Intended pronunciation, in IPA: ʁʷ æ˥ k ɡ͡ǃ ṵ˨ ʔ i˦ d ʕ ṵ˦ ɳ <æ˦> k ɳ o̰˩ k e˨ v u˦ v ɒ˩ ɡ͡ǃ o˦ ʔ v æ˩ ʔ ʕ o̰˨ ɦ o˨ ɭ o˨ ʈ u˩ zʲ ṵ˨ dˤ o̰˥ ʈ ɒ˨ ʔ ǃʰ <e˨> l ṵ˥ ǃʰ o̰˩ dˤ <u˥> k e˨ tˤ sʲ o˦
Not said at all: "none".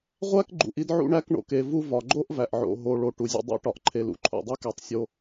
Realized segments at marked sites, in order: æ˦, e˨, u˥

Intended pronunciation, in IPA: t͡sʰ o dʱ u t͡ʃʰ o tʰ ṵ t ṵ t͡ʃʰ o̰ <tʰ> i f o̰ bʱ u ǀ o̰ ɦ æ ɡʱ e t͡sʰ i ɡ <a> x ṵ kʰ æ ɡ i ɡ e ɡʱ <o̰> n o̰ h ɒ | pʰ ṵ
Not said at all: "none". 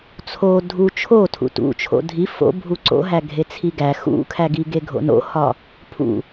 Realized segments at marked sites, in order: dʱ, æ, o̰

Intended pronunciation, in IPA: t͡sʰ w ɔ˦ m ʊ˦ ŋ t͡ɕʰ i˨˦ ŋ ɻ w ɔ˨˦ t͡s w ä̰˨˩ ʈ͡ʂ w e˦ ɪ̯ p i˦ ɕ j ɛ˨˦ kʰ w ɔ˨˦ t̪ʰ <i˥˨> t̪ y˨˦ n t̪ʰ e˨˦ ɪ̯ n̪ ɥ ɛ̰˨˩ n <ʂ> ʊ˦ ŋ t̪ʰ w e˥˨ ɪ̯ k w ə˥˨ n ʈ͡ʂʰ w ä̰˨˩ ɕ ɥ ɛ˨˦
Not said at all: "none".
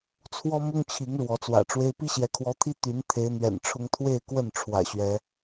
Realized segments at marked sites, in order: i˦, ʈ͡ʂʰ

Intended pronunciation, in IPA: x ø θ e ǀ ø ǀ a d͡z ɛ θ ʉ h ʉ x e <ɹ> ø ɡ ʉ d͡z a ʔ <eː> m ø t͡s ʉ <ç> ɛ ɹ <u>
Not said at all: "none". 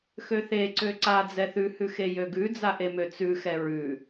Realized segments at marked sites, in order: j, e, x, ʉ

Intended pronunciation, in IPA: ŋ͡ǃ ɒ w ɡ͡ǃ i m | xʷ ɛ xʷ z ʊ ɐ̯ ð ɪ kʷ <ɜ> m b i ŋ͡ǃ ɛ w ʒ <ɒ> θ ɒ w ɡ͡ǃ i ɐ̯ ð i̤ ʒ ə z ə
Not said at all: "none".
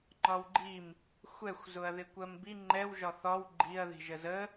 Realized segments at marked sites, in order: ɜ, ɒ

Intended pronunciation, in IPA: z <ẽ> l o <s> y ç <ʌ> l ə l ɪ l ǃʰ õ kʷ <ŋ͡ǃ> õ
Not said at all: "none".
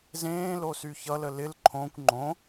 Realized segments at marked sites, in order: ẽː, s, ʌ, ŋ͡ǃ

